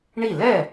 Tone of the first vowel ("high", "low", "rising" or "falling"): falling